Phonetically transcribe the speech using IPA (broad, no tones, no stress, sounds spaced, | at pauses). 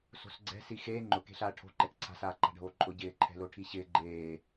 s o̤ s ɡ͡ǀ ɛ̤ s i x eː ŋ͡ǃ ʊ k e̤ ɬ aː ʈʰ o̤ ǃ ɛ k ǀʰ a̤ s aː ǃ a̤ ɖʱ oː ǃʼ ʊ ɟ ɪː ǃʰ ɛ̤ l o ʈʰ i ɕ ɪː ɡ͡ǃ eː